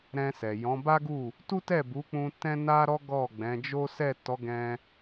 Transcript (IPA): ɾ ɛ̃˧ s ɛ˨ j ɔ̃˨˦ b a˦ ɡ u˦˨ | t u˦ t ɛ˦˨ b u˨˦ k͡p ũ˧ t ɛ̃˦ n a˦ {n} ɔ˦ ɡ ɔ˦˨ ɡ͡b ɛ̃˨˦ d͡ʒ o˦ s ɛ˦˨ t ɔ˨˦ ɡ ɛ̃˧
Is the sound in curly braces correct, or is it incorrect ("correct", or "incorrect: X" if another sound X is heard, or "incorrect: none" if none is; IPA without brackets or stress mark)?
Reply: incorrect: ɾ